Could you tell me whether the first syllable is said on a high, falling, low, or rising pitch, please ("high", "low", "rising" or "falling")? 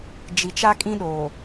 low